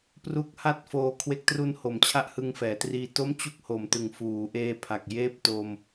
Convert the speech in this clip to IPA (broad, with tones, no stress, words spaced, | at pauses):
pru˦˥k̚ha˥˩t̚foː˧ kʰwe˦˥k̚tru˦˥nho˩˦m t͡ɕʰa˥˩ʔhɯ˧ŋfɛː˩˦triː˧ to˥˩mt͡ɕu˥˩k̚ ho˨˩mtɯ˨˩ŋfuː˩˦ ʔeː˧pʰa˨˩k̚ jeː˥˩p̚to˧m